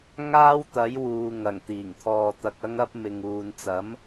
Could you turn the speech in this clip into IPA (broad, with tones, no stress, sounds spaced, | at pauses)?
ŋ aː˥ w t̪ ɐ˨˥ j w uː˨ ŋ ɐ˨˩ ŋ t̪ iː˨˩ ŋ t̪ʰ ɔː˧ t̪ ɐ˧ k̚ ɐ˥ ŋ ɐ˥ p̚ m ɪ˨ ŋ uː˨ n t͡s ɐ˨˥ m